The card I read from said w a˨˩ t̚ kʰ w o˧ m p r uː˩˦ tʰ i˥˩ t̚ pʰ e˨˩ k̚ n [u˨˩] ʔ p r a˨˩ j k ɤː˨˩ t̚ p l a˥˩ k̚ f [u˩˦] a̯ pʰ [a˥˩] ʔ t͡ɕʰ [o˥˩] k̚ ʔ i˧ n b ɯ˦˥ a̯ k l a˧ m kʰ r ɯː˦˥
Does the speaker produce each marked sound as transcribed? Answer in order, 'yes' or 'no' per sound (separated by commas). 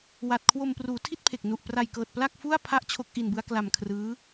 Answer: yes, no, yes, no